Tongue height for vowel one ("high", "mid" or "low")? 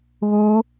high